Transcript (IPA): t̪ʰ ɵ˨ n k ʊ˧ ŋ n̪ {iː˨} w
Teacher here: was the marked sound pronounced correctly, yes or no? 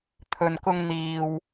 yes